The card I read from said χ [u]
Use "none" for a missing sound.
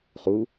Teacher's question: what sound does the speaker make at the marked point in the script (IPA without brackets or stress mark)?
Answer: u